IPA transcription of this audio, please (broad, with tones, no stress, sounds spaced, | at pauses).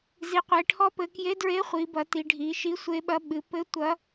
z i˩˧ qʷ e˩˧ ʈʰ ɔ˧˥ p ɘ˩˧ k j e˧˥ d ɹ e˧˥ χʷ i˩˧ b ɐ˩˧ t i˩˧ ɖʱ i˩˧ ʃ i˧˥ sʷ e˧˥ ɓ ɐ˧˥ ɓ ɨ˩˧ p ɘ˧˥ tʷ ɐ˧˥